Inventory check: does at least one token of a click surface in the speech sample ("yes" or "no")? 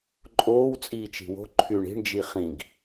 yes